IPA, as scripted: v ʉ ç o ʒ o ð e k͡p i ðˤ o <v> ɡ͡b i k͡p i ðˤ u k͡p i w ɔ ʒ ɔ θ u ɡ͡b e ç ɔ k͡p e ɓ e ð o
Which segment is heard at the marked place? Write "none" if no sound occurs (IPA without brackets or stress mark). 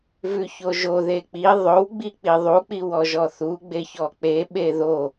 w